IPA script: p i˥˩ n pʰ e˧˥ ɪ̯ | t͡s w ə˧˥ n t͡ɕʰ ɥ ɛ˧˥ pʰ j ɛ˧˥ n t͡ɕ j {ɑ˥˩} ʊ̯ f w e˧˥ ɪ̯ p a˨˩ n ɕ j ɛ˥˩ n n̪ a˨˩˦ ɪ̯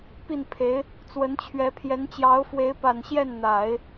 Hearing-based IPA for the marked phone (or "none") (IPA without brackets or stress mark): ɑ˧˥